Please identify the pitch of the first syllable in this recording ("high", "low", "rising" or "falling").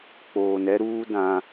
low